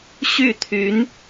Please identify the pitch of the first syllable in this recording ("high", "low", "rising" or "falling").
falling